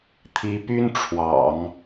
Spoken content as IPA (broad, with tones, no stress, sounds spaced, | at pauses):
t̪ʰ i˧˥ p y˥ n ʈ͡ʂʰ w ɑ̰˨˩˦ ŋ